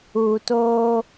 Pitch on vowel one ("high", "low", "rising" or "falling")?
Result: low